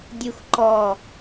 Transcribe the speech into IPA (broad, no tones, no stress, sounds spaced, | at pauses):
dʲ u x ǃ ɔ